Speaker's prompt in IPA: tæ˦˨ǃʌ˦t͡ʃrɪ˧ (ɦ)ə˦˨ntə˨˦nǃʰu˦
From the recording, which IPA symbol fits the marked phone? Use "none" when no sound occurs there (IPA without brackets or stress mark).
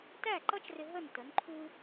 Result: ɦ